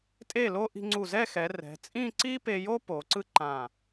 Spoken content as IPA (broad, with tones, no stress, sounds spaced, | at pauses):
tʼ e˧˩ l o˧ ʔ i̤˧ ŋ͡ǀ u˧˩ z ɛ˥˧ x ɛ˩˧ r ɛ̤˩˧ t͡sʼ ĩ˥˧ ǀ i˥ p e˧ j o˥ p o˩˧ ǀ ɯ˥ ǃ ã˧˩